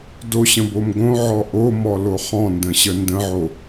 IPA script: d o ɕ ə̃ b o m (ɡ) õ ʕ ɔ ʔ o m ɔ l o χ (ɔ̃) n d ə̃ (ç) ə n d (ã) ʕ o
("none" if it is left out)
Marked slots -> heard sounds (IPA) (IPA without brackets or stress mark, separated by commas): ɡ, ɔ̃, ɕ, ə̃